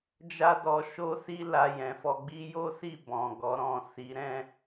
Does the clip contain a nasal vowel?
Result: yes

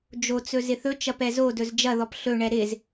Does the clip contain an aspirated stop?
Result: no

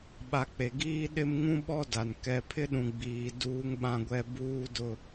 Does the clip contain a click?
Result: no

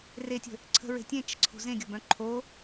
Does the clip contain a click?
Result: yes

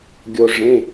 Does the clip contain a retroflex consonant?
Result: yes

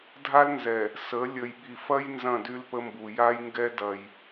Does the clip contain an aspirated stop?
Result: no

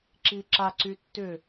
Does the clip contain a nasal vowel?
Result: no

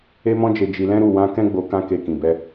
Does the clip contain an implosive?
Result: no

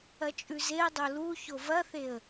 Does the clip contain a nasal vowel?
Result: no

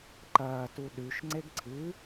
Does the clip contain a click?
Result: yes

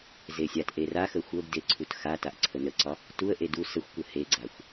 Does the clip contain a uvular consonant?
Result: no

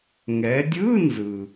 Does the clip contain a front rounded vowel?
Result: no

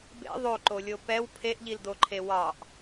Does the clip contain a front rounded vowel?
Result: no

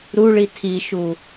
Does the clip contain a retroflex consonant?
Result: yes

